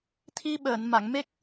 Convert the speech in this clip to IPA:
t̪ʰi˧ɓəː˨˩˨n ma˨˩˨ŋme˦˥k̚

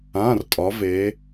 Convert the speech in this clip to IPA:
ã˩˧˩rtʼɒ˩˧v e˩˧

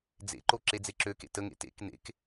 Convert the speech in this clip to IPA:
d͡zḛǃo ǁed͡zeǁøkḛ təŋḛ tḛk nḛk

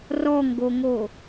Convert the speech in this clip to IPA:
rɔŋɡoŋo

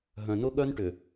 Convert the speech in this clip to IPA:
ɦœ̃˨nʊ˦ɠœ˦n ʈʏ˨

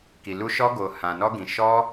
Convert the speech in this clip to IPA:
ki˨lu˧ ʃɔ˧ɡo˨ hã˨ nɔ˧ɡĩ˨ ʃɔ˧

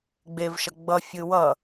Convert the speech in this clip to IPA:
ɡ͡bevʃʌ ɡ͡bʌfʲɯ wʌ

